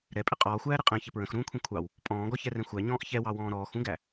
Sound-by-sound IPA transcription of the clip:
ɾ ɛ pʼ ɪ qʼ ɔː xʷ æː ɾ ɪ qʼ ɛ̃ ç ɪ p ɹ ə̃ x ɾ ũː kʷʰ ɛ̃ kʷʰ ɑ w | pʼ ɔ̃ː ɡ ɔ ç ɛ r ɛ̃ xʷ æ ɲ ɔ̃ː ʔ ç ɛ w ɑ w ɔ̃ː ɾ ɔː x ũ ɡ æ

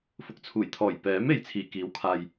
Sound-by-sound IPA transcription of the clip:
f ʊ˨ k̚ t͡sʰ uː˨˩ j t̪ʰ ɔː˨˩ j p ɛː˨˥ m e˨˧ j t͡sʰ iː˨˩ k iː˨˥ w kʰ aː˨ j

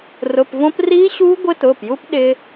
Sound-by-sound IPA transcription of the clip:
r ʊ˩˧˩ p v õ˦˥ p r iː˦˥ ɕ uː˦˥ ɡʷ ɪ˦˥ t ʊː˩˧˩ p j u˦˥ p ɗ ɪ˦˥

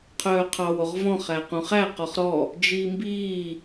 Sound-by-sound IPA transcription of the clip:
qʰ œː qʰ ɑ w o ʁ v ɔ̃ χ æ q ũ χ æ q ɔ χ ɾ ɔ | d͡ʒ iː m b iː

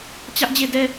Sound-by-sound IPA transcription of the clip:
t͡ɕ ä˦ ʔ d͡ʑ e˦˨ d ɛ˦

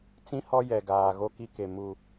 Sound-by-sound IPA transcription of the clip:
t͡s ĩ˦ h ɔ˦ j ɛ˨ ɡ aː˨ ɣ o˦ k i˦ k e˨ m u˨

